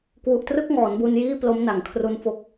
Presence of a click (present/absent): absent